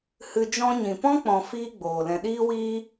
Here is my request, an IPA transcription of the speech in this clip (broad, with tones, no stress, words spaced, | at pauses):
hɨ˧d͡ʒɔ̃˦ ɲĩ˨ pɔ̃˦k͡pɔ̃˨ fiː˦ɡ͡boː˨ lɛ̃˨ɗiː˦wiː˦